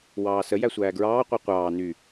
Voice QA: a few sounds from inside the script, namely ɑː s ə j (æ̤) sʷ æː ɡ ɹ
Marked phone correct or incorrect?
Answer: incorrect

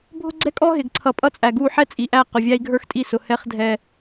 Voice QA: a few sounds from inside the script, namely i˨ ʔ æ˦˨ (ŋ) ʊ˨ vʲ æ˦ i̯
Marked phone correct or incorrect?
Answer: incorrect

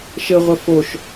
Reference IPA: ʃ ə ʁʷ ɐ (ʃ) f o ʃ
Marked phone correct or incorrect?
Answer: incorrect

